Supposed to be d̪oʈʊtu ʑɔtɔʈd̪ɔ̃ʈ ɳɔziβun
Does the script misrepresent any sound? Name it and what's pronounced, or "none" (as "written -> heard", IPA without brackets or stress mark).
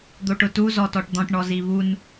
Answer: ʑ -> z